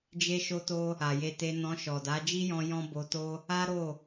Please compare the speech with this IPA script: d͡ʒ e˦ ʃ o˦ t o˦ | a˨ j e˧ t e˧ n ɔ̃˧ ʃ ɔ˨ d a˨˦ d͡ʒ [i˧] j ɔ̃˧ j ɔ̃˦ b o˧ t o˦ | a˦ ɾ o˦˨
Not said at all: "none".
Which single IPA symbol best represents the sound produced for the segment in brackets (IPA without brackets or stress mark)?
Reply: i˦